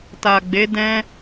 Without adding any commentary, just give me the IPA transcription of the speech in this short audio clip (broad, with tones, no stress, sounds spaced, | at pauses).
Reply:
t a˨ ɡ͡b e˨˦ d ɛ̃˧